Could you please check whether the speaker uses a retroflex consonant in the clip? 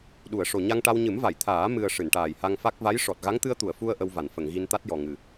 yes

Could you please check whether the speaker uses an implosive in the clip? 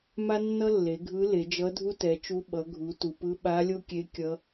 yes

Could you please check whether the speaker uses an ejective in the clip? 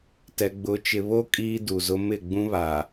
yes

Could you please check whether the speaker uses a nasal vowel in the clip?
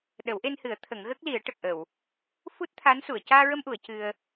no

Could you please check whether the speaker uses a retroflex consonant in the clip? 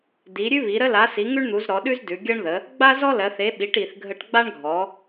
yes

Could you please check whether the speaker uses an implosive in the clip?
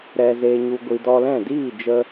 no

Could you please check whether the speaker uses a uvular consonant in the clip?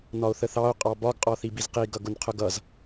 yes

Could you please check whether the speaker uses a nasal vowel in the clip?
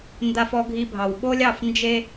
no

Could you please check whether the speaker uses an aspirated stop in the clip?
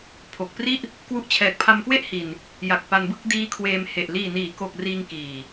yes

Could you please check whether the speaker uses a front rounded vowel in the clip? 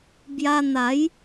no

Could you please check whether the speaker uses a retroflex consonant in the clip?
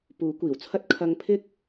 no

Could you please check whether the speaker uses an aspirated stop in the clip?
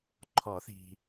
yes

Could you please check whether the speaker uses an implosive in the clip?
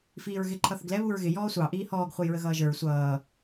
no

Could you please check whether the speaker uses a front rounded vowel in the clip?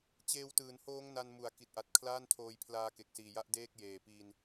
no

